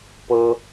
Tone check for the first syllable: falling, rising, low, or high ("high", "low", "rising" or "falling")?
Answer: high